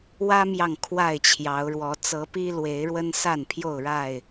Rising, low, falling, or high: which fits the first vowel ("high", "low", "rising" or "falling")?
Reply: high